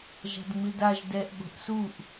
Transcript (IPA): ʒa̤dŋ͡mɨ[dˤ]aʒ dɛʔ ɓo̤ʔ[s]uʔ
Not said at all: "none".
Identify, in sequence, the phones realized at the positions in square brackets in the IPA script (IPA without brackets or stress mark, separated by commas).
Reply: d, s